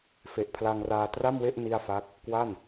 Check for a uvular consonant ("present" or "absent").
absent